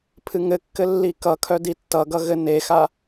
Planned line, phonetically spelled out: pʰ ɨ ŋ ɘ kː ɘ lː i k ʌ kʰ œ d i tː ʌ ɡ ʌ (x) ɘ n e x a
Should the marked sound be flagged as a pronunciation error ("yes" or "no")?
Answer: yes